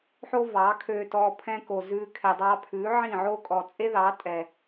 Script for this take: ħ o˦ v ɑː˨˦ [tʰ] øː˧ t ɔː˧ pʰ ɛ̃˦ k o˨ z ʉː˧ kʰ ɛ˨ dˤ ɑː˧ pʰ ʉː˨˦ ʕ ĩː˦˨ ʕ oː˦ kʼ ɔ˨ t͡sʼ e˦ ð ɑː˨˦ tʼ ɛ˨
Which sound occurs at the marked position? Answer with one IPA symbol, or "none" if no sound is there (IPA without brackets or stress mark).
kʰ